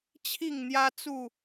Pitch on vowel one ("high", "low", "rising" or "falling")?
falling